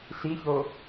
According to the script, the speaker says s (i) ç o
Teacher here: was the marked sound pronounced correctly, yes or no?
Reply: yes